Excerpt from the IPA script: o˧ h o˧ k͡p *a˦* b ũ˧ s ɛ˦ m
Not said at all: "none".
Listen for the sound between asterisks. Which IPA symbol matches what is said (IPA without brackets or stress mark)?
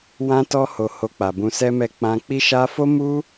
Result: a˨